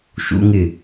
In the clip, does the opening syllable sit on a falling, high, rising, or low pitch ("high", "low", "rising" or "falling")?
high